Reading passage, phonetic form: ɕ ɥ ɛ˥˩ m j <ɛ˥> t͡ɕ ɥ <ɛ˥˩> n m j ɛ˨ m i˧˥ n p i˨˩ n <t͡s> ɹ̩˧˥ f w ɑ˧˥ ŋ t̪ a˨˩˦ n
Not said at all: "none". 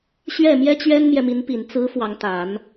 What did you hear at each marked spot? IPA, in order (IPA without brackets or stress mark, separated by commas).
ɛ˥, ɛ˥, t͡s